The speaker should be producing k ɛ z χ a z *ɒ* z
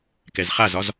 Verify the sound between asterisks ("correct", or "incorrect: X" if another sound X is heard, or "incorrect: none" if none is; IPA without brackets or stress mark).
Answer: correct